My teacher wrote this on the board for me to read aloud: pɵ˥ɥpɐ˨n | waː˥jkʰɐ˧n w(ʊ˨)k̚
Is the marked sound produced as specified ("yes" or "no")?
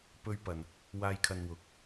no